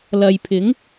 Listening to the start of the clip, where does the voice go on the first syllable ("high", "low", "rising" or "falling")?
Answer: low